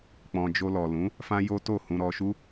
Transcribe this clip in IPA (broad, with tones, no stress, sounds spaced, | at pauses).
k͡p ɔ̃˧ d͡ʒ o˧ l ɔ˨ l ũ˨˦ | f ã˦ j o˦ t o˦˨ h ũ˧ ɾ ɔ˧ ʃ u˦